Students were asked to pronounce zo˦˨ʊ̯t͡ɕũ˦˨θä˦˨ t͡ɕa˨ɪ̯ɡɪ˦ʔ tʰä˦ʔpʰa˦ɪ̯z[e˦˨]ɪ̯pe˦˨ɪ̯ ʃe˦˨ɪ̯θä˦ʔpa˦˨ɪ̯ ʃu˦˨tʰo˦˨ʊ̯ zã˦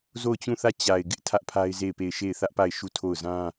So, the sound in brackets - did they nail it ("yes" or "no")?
yes